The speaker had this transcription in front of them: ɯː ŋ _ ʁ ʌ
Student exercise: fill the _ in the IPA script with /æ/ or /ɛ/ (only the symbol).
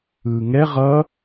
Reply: ɛ